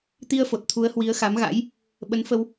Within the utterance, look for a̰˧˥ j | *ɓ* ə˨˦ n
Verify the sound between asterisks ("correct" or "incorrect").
correct